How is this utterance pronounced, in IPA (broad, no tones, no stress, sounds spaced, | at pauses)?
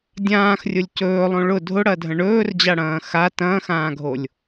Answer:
dʲ ãː x rʲ ʊ lʲ c ɵː lˠ õ ɭ ʊ dʱ ʊ ɽ ɐ dʱ ə̃ ɳ ɵː r d͡ʑ a ɽ ɐ̃ː x a t ɐ̃ː x ãː ɡʱ o lʲ